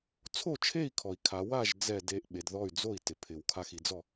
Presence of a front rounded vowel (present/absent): present